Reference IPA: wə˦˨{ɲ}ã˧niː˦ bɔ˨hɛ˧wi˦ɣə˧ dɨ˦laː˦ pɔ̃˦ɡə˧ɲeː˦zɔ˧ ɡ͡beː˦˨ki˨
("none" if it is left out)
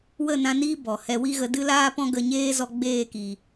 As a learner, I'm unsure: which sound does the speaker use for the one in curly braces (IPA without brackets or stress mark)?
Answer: n